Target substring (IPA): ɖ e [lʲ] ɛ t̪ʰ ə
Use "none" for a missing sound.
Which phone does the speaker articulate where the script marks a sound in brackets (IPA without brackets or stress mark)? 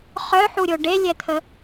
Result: lʲ